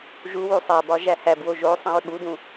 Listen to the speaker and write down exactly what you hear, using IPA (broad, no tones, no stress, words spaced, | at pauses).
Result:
ʒuwu sˤæbɒ ʒæhæbwo ʒo sˤĩɹɠudũ